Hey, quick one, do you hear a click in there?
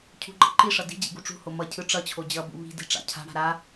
yes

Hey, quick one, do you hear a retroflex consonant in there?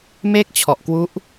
no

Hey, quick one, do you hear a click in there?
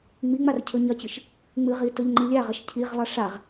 yes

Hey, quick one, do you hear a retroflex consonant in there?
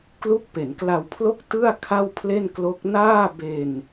no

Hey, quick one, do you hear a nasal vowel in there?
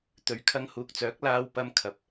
no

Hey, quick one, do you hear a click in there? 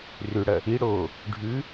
no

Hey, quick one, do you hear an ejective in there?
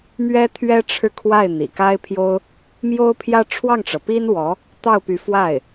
no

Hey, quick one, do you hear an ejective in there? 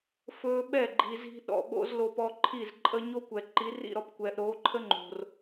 yes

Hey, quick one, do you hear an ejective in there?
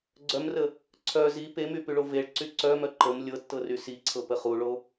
no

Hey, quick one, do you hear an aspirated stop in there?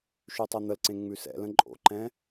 no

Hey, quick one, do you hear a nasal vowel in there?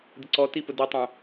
yes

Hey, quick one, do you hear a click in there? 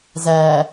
no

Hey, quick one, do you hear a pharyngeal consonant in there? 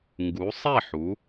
yes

